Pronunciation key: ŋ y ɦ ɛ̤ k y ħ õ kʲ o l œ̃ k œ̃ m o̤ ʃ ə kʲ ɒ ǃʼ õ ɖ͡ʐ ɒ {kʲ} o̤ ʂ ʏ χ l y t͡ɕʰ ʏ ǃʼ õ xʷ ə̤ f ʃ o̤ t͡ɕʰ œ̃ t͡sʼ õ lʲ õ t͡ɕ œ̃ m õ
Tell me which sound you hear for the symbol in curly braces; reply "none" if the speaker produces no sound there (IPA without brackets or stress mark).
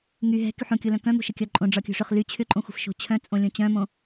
kʲ